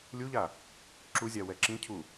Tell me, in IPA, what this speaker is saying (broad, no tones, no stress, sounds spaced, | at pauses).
lʲ u ʎ a | ǁ u zʲ a w ɛ ǁ ĩ cʰ u